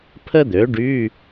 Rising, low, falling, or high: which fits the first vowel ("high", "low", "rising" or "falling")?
high